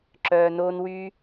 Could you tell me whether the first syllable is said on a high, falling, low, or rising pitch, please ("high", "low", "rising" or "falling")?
low